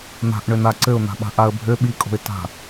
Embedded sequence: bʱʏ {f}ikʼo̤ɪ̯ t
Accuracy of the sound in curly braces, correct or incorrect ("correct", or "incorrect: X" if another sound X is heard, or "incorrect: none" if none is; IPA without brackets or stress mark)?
incorrect: ɓ